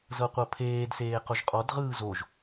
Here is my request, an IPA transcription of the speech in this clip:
z ɤ qʷ ɤ pʰ eː d s eː q o ʒ qʼ ɔ d ʁ ɯː z o ʒ

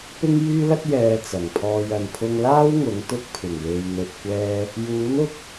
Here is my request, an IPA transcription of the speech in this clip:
p ɪ˥ ŋ j yː˥ l ɐ˥ t̚ j ɛː˧ t͡s ɐ˨˩ ŋ pʰ ɔː˧ j ɐ˨ n pʰ ʊ˧ ŋ l aː˥ w ŋ ʊ˨˥ ŋ t̪ ʊ˧ k̚ pʰ ɪ˨˩ ŋ w e˨ j n̪ ɵ˨ t̚ kʷ ɛː˧ | j uː˨˥ n ʊ˧ k̚

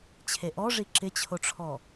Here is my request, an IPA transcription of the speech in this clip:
t͡ɕʰ e ʔ ɔ ʐ i ǁ ɪ t͡ɕʰ o ʈ͡ʂʰ ɔ

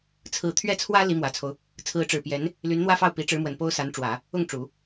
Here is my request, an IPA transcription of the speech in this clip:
t͡sʰ ɹ̩˥˧ t̪ʰ ɥ ɛ˥˩ t͡sʰ w ä˥ l i˧˥ m w ä˨˩ t͡sʰ o˦ ʊ̯ | t͡sʰ ɹ̩˧˥ ʈ͡ʂ ɻ̩˨˩ p j ɛ˧˥ n | l y˧˥ n n̪ w ä˥ f ɑ˥˩ ʊ̯ p i˧˥ ʈ͡ʂ ɻ̩˧˥ m w ə˨˩ n p o˥ ʊ̯ s a˧˥ n ʈ͡ʂ w ä˨˩˦ | ʊ˥˩ ŋ ʈ͡ʂ u˨˩˦

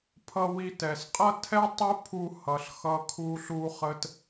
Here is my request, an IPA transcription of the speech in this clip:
pʰ ʌ˧ w i˧ t ɛ˨ s qʼ ʌ˦ tʰ ɛ˦ tˤ u˦ pʰ u˧ h ʌ˨ ɬ x ʌ˧ kʰ u˧ ɬ u˧ χ ə˧ t

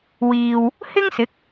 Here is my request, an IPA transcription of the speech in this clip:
w iː˨ w | h ɪ˥ ŋ s ɪ˨˥ k̚

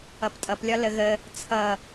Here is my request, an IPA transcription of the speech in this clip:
ʌ p tʼ ʌ p lʲ ɒ l ə ɣ ə | t͡sʰ ʌ

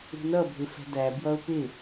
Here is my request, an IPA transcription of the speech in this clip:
ṳ n ʌ bʱ ɪ f ɛ̤ d æ b j ʌ ʊ̯ p ɪ

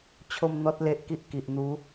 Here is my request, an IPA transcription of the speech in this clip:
t͡ɕʰ o˥˧ m n̪ ɔ˦ t̚ l e˦ ʔ k i˦ ʔ k i˨ ʔ n̪ u˨˦

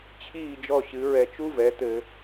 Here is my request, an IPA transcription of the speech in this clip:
t͡ɕʰ iː˥˩ d͡ʒ ɔ˥˩ ɕ ɨ˩˥ ɹ ɛ˧ t͡ʃ u˥ v ɛ˩˥ t̪ ɘ˧

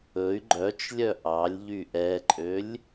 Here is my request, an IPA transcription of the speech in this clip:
ɵ y̯ ɡ͡ǃ œ t͡ʃ lʲ œ ʔ ɑ lʲ ʎ y ʔ ɛ ǃʼ ø lʲ

